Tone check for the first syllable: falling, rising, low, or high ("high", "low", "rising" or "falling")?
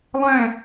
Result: falling